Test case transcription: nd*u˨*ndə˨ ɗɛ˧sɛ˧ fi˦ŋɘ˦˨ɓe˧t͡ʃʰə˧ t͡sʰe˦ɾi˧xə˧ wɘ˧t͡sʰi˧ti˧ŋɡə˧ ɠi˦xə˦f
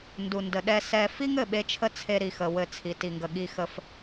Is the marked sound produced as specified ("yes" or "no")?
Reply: yes